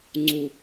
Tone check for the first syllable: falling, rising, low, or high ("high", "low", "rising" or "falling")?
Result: low